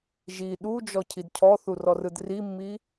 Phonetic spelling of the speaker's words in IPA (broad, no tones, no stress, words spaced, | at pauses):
ʒi ɗud͡ʒɔ cʰidcʰɔθur ɔrɯdrimːi